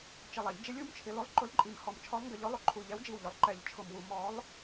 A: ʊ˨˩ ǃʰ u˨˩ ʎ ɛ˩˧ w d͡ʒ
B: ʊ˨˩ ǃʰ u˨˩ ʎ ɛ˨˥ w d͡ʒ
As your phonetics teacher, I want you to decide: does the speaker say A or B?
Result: B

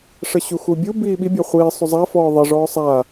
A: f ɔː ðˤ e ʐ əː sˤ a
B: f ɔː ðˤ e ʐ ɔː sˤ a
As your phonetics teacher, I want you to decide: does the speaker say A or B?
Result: B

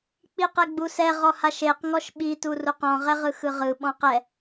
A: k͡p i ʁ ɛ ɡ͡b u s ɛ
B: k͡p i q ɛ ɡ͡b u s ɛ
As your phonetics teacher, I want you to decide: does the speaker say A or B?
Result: B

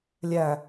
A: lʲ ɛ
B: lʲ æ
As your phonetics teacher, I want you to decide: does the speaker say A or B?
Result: B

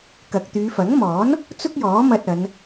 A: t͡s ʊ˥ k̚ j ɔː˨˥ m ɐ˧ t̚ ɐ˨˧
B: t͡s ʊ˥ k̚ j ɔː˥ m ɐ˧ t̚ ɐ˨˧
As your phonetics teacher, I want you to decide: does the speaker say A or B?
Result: A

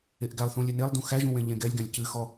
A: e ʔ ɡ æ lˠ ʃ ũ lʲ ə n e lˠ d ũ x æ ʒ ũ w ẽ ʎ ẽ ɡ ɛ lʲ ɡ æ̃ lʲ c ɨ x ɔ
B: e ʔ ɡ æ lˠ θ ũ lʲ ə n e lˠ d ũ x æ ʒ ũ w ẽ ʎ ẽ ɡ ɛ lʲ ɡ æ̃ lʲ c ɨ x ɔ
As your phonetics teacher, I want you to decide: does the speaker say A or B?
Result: B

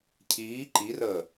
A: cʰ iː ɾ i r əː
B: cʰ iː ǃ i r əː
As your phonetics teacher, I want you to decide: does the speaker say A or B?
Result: B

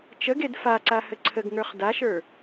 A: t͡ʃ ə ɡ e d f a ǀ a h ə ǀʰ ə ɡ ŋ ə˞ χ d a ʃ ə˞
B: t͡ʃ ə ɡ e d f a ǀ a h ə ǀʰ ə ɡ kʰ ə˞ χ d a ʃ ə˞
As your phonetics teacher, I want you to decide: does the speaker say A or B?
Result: A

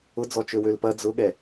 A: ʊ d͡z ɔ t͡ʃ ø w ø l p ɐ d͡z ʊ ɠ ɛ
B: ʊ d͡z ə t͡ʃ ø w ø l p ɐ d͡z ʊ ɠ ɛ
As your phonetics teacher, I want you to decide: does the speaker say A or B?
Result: A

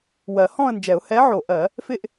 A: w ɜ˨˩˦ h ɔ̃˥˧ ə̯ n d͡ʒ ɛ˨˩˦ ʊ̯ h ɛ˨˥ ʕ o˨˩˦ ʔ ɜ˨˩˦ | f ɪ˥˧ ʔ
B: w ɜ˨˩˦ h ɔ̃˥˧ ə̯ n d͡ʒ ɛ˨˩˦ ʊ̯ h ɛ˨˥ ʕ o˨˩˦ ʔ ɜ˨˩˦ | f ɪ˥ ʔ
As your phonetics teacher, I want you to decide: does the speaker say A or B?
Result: A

